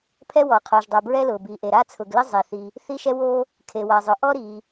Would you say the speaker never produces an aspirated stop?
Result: no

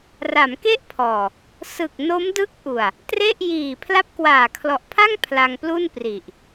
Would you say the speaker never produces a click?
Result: yes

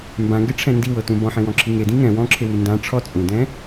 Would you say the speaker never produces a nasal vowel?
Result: no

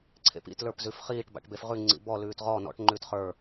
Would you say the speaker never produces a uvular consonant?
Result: no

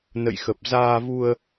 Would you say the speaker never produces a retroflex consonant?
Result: yes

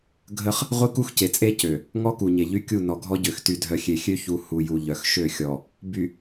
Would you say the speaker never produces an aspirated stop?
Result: yes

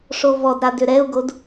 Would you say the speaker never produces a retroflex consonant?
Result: no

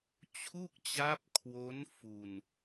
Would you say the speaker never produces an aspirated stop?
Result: no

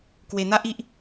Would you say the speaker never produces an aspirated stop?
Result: yes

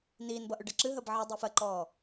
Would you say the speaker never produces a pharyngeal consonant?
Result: no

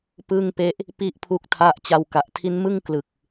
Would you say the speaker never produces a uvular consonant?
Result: yes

